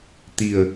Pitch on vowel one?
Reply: low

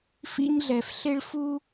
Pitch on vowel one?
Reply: high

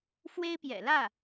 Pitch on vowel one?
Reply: high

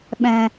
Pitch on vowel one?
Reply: low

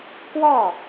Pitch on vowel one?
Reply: falling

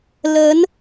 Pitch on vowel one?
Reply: rising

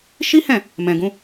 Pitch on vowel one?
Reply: high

